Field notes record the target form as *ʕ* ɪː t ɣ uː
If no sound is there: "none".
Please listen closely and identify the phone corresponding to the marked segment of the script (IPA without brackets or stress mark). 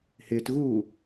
h